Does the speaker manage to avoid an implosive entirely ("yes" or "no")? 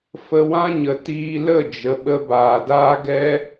no